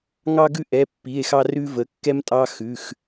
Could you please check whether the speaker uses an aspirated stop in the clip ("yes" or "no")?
no